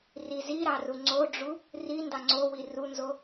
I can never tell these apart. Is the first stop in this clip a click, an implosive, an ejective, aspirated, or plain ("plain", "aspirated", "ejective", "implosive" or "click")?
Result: click